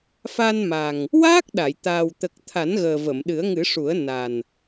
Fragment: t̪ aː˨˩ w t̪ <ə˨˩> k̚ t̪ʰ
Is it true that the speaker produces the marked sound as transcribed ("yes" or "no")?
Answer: yes